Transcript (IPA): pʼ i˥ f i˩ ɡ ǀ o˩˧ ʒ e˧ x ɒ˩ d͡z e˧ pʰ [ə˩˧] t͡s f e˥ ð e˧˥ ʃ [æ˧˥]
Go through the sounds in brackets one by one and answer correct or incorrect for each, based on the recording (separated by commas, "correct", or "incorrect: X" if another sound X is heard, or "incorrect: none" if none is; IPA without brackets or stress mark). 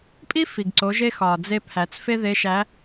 incorrect: æ˩˧, correct